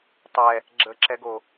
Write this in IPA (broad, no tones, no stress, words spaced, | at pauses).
tˤɛ | ɡ͡ǁəǁɛɡo